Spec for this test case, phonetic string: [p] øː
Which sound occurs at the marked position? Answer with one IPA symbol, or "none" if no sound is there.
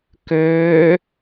k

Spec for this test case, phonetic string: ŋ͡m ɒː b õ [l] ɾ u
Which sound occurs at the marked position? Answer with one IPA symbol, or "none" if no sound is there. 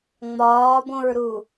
ɹ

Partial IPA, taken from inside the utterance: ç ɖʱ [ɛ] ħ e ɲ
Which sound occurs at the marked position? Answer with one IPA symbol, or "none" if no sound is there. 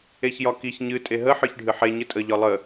ɨ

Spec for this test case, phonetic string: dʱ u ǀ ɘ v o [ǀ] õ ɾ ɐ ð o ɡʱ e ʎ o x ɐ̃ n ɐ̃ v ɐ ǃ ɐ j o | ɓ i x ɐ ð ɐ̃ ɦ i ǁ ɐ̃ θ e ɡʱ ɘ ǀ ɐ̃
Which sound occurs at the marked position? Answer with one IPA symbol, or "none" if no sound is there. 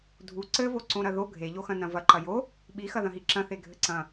ǀ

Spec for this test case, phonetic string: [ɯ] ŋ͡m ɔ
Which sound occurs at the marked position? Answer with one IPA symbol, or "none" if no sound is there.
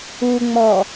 u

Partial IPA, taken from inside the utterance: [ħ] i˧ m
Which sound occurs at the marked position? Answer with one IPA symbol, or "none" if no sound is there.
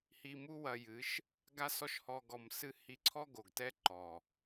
h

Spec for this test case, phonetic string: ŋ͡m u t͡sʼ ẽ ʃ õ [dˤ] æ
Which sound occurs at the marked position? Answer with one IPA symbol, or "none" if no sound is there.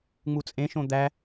d̪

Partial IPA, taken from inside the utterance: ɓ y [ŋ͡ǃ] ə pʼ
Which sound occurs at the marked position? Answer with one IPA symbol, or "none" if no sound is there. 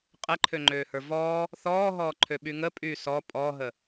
ŋ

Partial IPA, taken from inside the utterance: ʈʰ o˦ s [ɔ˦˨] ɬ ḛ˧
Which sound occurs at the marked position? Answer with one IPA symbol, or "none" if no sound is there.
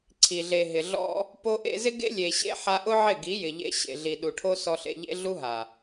ɔ˧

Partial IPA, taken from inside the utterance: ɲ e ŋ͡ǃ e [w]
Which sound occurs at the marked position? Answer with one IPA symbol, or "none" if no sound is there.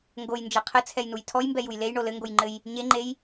j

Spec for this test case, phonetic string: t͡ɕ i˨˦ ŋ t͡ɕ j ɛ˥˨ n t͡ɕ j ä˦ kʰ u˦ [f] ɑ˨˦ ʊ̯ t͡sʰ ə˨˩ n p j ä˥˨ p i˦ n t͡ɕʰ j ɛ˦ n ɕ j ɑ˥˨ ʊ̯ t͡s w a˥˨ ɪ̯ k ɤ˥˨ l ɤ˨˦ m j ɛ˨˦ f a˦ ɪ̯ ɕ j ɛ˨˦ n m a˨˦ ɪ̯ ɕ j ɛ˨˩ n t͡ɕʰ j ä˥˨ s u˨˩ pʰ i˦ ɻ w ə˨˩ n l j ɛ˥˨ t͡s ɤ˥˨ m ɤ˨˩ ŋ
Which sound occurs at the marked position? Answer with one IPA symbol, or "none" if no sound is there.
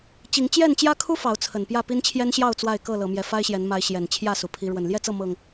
f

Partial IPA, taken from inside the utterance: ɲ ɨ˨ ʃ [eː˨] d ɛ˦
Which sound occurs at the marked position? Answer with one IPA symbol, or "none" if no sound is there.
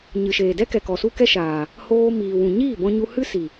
eː˨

